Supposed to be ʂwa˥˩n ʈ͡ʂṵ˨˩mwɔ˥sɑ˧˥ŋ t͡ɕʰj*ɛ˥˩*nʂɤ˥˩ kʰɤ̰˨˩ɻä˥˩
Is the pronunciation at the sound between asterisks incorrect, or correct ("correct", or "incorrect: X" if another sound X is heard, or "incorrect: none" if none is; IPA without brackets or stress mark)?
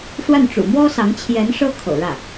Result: incorrect: ɛ˧˥